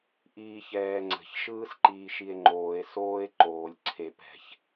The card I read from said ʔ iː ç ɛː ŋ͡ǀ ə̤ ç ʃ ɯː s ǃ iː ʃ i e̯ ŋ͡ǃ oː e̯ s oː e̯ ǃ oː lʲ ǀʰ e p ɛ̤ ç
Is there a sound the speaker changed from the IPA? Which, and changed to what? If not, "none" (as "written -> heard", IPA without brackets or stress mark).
none